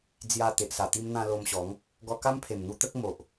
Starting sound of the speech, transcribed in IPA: d͡z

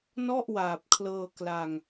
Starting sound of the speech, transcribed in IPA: n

